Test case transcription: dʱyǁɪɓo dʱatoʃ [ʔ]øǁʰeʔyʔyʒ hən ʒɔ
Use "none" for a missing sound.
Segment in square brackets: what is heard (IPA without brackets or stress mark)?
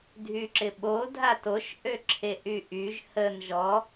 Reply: ʔ